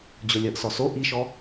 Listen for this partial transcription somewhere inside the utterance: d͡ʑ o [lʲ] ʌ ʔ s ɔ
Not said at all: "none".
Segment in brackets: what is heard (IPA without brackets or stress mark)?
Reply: lʲ